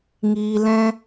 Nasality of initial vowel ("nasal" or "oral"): oral